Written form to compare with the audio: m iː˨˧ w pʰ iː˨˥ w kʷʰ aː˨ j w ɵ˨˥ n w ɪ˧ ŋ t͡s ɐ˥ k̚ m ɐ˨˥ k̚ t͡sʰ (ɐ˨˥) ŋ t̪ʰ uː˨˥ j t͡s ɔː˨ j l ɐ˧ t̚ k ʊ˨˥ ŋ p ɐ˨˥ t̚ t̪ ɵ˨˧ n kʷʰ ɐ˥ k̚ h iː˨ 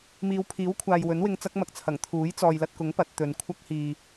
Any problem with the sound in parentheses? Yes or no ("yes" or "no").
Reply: yes